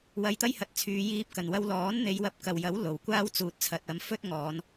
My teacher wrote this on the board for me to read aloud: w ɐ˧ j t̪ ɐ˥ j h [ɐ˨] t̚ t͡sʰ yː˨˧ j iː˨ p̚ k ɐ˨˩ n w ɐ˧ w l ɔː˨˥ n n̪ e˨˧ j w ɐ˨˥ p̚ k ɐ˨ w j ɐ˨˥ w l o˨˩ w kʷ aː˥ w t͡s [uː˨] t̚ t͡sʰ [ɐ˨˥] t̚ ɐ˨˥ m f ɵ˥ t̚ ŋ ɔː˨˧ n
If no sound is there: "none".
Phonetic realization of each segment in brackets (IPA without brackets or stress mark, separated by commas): ɐ˨, uː˨, ɐ˨